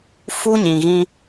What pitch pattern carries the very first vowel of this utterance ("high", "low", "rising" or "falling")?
high